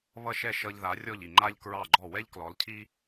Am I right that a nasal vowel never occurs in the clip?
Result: yes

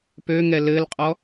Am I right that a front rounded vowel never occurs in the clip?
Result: no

